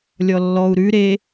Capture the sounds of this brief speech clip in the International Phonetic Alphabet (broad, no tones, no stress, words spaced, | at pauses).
lʲɔlːɔu̯ ɾʉ ɾe